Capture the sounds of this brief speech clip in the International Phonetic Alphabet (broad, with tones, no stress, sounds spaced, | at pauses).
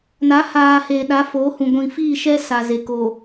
n a˨˦ h aː˨ h eː˨ ɗ a˨˦ f oː˨˦ h ũ˨ ɡʷ ĩ˨ f iː˦˨ ʃ ɛ˦ s a˨ z e˨ k o˨